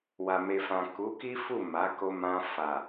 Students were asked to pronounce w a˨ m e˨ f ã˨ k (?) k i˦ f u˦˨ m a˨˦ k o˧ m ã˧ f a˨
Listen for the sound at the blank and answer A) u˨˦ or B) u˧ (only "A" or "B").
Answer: A